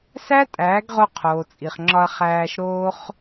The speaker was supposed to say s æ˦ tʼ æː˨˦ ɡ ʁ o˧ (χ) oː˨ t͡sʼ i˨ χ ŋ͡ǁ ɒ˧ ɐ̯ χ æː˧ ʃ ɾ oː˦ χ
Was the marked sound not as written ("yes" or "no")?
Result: yes